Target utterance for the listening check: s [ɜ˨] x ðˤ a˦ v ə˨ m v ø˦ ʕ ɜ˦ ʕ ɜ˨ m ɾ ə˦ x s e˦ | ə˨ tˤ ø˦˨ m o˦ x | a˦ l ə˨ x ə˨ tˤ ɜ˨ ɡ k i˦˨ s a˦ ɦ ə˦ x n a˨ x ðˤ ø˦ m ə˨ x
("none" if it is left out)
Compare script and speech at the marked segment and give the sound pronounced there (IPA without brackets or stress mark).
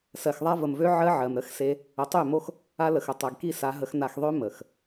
ɜ˨